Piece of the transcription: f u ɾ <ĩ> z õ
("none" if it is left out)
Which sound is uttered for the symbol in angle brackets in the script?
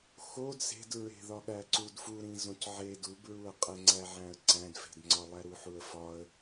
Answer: ĩ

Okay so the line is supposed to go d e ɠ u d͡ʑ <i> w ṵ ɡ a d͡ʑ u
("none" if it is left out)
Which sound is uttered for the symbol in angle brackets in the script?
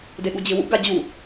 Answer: ɪ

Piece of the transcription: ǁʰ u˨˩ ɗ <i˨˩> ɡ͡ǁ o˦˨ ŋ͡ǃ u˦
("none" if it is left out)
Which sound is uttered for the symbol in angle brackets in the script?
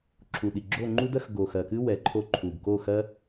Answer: i˨˩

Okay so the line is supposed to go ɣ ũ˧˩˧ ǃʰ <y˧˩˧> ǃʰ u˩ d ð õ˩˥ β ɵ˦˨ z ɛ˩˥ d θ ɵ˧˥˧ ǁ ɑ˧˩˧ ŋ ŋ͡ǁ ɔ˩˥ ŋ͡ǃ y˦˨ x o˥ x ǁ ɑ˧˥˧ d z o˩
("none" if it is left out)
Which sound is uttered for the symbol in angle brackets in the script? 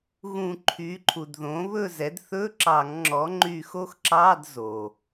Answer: y˩˥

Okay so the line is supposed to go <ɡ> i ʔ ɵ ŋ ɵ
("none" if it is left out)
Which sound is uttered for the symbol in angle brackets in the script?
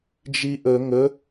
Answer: d͡ʒ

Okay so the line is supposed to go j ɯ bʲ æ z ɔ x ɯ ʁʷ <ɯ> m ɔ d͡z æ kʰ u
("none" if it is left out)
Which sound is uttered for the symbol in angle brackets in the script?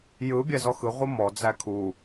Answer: ɯ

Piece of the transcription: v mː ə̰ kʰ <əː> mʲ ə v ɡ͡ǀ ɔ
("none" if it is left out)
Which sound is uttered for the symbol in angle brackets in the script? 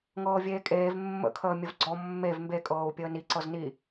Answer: əː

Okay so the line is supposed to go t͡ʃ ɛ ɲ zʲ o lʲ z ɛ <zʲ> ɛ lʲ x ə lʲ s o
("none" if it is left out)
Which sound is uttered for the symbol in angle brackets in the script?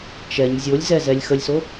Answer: z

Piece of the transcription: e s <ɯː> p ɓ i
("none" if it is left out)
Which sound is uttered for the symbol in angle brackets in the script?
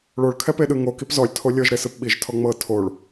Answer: ɯ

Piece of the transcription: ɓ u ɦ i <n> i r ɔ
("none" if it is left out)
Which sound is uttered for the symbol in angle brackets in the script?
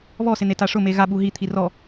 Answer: t̪ʰ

